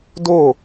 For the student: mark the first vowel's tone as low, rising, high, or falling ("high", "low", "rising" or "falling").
falling